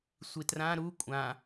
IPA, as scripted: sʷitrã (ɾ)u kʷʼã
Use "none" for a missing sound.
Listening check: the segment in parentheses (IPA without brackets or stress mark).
ɾ